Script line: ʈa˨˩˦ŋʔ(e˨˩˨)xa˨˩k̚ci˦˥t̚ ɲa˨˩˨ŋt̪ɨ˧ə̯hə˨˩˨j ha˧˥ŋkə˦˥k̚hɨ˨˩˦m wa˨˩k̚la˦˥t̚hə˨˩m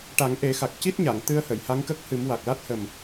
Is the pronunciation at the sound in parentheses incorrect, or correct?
incorrect